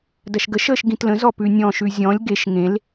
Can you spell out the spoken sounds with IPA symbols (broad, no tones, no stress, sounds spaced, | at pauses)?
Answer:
d ɐ ʃ ɡ ə ʃ əː ʃ ɡ ĩ t l ə̃ z ɔ p ʉ nʲ ɔ̃ ʃ ʉ zʲ ɔ̃ lʲ ɡ e ʃ ŋ ẽ l